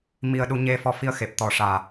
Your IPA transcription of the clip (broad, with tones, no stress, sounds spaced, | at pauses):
m i˧ ə̯ ɗ u˧˥ ɲ e˧ f ɔ˧ f i˧ ə̯ x e˨˩ p̚ t̪ ɔ˨˩˦ ʂ aː˨˩